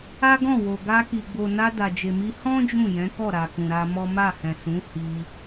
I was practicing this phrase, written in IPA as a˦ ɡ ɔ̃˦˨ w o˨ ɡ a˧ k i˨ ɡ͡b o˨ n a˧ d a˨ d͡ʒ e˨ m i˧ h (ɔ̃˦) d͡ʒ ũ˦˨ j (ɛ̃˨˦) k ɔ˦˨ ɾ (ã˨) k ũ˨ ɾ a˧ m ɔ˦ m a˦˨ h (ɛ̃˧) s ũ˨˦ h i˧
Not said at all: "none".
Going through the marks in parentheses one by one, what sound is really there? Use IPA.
ɔ̃˦, ɛ̃˨˦, a˨, ɛ̃˨

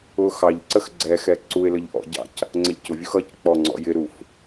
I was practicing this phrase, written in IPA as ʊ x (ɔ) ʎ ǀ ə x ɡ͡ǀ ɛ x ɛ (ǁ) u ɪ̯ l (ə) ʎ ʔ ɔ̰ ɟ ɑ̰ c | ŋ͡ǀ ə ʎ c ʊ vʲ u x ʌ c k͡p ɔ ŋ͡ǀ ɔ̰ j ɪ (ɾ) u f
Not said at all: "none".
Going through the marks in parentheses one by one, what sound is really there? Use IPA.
ɑ, ǀ, ə, ɾ

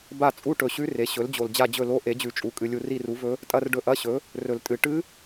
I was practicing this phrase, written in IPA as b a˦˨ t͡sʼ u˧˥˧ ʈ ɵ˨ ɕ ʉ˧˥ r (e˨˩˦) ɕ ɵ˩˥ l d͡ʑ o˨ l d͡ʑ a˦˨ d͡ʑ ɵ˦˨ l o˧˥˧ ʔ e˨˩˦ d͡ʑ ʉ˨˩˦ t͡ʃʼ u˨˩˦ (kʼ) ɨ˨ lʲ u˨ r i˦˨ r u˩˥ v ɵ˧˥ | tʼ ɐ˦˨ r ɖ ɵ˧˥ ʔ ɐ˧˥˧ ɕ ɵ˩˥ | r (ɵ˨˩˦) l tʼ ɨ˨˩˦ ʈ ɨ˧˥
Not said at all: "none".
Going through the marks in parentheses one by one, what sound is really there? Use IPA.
e˩˥, kʼ, ɵ˨˩˦

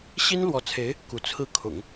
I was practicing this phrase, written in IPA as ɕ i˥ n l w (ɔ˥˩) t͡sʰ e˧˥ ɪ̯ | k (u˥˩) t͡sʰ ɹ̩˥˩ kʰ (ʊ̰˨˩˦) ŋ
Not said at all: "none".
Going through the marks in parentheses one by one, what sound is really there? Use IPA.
ɔ˧˥, u˧˥, ʊ̰˨˩˦

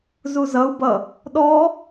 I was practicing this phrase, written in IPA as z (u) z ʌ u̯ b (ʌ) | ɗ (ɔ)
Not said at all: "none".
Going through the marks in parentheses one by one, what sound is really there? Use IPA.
u, ʌ, ɔ

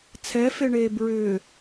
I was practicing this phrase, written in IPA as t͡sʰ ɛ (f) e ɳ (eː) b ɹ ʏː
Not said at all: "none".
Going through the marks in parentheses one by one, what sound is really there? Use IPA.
f, eː

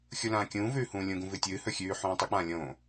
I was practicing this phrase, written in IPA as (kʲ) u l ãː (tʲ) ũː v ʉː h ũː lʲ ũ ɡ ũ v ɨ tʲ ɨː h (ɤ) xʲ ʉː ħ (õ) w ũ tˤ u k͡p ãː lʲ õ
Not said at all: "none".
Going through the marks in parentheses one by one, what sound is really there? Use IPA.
xʲ, kʲ, ɵ, ũ

